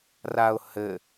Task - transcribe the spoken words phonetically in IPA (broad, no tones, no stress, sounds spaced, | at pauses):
r a ʊ̯ h ɘ